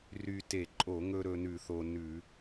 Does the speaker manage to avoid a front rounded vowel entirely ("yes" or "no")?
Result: no